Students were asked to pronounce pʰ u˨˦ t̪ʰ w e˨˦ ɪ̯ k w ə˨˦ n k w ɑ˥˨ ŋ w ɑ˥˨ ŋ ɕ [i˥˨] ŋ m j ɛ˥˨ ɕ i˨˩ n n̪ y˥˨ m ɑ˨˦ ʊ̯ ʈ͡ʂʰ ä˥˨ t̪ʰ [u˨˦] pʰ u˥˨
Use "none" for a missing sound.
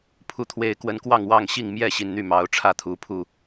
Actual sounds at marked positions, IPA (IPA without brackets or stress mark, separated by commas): i˥˨, u˨˦